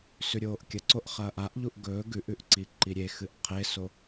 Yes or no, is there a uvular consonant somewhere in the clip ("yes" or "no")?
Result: yes